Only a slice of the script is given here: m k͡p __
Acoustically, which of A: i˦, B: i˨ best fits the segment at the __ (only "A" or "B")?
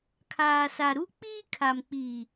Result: B